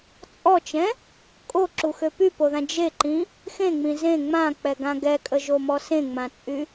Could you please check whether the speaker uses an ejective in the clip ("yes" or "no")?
yes